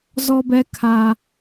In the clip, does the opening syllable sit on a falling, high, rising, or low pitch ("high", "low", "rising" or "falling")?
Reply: high